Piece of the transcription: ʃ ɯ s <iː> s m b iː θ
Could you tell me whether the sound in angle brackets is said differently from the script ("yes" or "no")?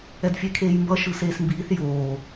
yes